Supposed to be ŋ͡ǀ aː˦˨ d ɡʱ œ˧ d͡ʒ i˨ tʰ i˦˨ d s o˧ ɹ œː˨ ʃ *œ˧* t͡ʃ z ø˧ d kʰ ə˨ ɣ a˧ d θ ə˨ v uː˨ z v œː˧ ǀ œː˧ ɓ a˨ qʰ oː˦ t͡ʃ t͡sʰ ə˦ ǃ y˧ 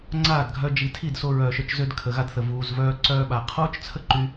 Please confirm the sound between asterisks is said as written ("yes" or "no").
yes